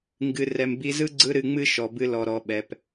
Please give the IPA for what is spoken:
ŋɡɨ˨ rɛ˨mbi˧zɯ˦ ɡ͡ǀɯ˦ɾɨ˧ŋ͡mɨ˦ ʃɔ˨bɨ˧lɔ˨ɾɔ˨ ɓɛ˨p

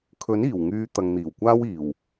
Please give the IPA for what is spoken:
kʰɵ˨˥niː˨˩wŋyː˨˧ t̪ɐ˨ŋn̪iː˨˩wkʷaː˥wiː˨˩w

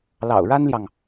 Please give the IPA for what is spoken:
lɑ̰˨˩ʊ̯ɻa˥nljɑ˨ŋ

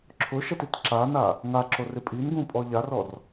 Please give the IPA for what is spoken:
ǁʰʊʃɛtit ǁana | ŋaǁorɪ pʼinɡũpʼɔ ʎarɔr

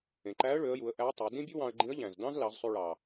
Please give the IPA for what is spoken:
ẽ˩ǃæ˧˥ə̯ɭø˩˧ə̯ju˩˧ə̯ ʔæ˧˥tˤe˩˧ dĩ˥bʲu˥wɑ̃˧ə̯ɡ͡ǃĩ˧˥ə̯ ʎæ̃˩zdɑ̃˥zlɑ˩˧zsˤy˧ ɭɑ˩

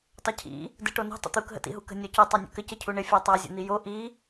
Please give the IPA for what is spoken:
tˤəcʰḭ | dɨʈonṳ tˤə̰t̪uk ɦə̰tḭɦukə̤ nʲɔcu tˤanʲə̰kəc əcʰuɳɪ fʲatˤa zʲə̰n̪ijo ʔi

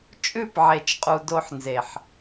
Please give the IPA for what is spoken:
t͡ʃʼʉ˦˨pʕe˨t͡ʃqʼu˨ do˦ħnze˨ħ

